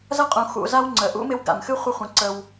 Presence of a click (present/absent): present